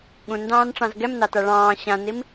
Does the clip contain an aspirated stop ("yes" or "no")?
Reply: no